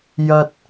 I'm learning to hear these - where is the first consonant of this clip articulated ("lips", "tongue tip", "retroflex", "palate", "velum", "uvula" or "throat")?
palate